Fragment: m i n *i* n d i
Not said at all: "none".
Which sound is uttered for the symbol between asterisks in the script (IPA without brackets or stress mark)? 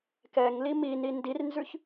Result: i